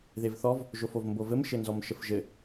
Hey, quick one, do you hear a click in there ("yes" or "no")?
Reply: no